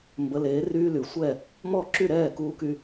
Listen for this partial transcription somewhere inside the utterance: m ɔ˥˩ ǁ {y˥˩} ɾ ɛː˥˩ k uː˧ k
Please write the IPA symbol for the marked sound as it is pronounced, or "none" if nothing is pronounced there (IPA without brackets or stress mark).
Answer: y˥˩